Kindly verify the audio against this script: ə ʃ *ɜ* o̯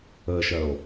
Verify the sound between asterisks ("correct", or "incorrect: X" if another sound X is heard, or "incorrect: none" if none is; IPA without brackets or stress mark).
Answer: correct